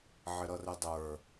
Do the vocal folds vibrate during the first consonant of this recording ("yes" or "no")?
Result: yes